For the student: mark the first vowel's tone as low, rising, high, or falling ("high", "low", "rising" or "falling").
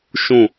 falling